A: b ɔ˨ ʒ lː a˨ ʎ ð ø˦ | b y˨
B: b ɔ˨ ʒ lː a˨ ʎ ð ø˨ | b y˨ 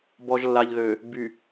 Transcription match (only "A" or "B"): B